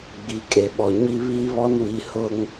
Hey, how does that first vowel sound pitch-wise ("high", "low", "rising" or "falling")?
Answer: rising